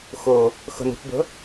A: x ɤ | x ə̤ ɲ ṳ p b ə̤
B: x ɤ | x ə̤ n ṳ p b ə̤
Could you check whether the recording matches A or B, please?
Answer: B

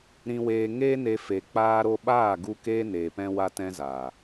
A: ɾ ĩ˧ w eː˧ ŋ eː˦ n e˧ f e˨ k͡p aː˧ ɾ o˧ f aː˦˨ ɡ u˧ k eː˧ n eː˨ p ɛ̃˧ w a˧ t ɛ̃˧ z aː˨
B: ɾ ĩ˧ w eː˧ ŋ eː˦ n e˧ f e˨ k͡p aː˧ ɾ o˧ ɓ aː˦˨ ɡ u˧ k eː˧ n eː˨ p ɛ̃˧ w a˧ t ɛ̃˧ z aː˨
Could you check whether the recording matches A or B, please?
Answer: B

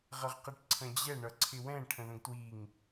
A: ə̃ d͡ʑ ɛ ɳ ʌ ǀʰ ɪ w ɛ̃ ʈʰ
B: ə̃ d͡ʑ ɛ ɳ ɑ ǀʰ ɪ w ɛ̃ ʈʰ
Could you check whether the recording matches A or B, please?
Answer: A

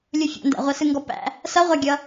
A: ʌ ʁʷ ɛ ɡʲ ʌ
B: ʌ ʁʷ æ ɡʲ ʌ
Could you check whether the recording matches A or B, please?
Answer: B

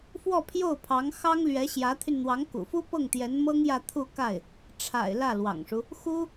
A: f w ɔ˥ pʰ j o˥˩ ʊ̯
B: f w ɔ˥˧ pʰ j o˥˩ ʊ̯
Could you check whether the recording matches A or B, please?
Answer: B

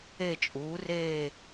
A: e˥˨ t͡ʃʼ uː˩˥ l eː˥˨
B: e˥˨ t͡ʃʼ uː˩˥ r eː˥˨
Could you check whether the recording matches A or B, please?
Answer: B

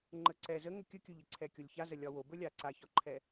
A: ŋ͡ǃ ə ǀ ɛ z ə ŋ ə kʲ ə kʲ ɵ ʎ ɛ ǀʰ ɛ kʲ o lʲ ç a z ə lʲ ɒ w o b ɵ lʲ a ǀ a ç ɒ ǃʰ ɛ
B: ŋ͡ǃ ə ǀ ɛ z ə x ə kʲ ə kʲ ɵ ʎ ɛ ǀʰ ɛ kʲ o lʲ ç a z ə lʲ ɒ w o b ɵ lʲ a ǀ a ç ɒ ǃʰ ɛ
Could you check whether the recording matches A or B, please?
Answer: A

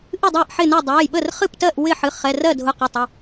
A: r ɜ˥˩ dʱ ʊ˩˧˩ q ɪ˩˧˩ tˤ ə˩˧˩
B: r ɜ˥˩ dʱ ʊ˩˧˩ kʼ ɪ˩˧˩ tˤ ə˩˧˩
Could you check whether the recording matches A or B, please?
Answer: A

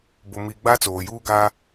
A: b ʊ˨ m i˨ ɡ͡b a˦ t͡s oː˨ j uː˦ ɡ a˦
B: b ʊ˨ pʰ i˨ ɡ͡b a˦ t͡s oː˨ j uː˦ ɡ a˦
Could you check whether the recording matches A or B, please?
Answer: A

